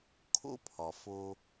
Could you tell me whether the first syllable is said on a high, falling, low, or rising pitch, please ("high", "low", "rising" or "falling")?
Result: high